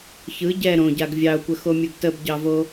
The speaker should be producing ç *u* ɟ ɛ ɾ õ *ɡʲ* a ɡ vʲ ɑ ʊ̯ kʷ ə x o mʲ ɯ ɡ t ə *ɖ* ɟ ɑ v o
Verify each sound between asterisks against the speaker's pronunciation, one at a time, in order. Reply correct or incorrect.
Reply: incorrect: ɯ, incorrect: ɟ, incorrect: b

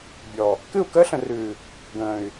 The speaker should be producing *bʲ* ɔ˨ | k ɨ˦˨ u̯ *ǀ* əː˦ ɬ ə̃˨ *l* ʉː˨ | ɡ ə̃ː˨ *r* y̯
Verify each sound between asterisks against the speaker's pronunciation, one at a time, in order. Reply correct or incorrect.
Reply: correct, incorrect: k, incorrect: r, incorrect: none

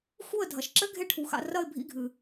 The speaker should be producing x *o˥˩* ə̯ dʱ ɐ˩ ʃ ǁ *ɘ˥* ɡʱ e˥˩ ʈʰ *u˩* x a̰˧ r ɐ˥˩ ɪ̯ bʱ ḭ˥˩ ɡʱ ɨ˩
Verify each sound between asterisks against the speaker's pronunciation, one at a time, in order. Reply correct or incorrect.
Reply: incorrect: u˥˩, correct, incorrect: u˩˥

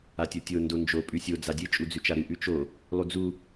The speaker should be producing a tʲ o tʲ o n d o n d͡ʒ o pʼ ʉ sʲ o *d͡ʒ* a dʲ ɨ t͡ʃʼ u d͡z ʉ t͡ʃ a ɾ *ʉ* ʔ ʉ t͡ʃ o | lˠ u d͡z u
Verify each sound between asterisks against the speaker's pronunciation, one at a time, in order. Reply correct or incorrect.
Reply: incorrect: d͡z, incorrect: ɨ

